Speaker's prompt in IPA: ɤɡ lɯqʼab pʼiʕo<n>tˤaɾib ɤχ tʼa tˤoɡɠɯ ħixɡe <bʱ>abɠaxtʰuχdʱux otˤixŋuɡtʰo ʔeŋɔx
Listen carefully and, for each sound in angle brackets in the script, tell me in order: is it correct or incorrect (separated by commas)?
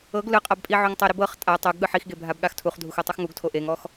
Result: incorrect, correct